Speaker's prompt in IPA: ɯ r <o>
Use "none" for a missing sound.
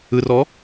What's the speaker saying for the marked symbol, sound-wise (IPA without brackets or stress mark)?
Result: ɔ